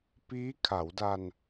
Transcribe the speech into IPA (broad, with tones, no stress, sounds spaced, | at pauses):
p iː˦˥ kʰ a˩˦ w d a˧ n